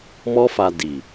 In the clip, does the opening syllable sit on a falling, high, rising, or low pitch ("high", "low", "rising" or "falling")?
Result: high